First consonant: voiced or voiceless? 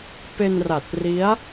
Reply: voiceless